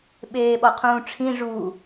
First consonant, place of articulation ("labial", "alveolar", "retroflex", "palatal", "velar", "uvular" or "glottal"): labial